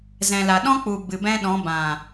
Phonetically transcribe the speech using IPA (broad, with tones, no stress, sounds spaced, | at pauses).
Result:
z ɛ̃˨ l a˨ ɗ ɔ̃˦ k͡p u˨ b ɨ˨ b ɛ̃˦ ɗ ɔ̃˨˦ b ã˨